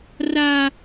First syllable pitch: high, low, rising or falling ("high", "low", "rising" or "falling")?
high